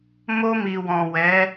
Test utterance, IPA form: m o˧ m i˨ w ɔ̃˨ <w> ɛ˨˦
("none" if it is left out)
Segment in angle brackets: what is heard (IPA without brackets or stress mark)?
w